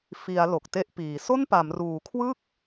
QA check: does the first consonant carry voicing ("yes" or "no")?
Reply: no